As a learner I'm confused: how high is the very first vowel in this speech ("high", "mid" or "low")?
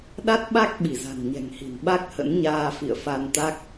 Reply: low